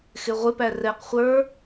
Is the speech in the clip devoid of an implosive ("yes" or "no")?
yes